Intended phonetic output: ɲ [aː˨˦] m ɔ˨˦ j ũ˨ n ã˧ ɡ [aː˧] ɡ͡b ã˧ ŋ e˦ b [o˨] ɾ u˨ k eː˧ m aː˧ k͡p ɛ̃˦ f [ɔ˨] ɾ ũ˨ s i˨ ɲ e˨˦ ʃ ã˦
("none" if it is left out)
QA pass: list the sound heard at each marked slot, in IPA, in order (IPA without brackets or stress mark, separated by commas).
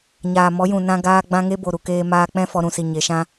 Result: aː˨, aː˧, o˨, ɔ˧